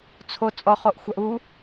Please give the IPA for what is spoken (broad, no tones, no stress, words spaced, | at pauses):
t͡sʰo t͡sʼɔχoʔ xʷaʔu